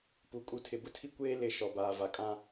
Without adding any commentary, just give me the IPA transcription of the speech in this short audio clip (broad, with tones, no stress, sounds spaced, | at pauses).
p u˨ kʼ u˨ tʰ ɪ˨ b ʊ˦ tʰ i˦ kʷ eː˦ l ɪ˦˨ ʃ ɔ˨ b aː˨ v a˨ kʼ ã˦